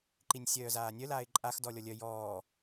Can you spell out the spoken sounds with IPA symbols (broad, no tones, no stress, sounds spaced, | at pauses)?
ǃ i nʲ sʲ œː z aː nʲ œ l aː ɪ̯ ǃʼ a x d ɔ lʲ ɔ lʲ œ j ɔː